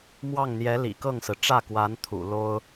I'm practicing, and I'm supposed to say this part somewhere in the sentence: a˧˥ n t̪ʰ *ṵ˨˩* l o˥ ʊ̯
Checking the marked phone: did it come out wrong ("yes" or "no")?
no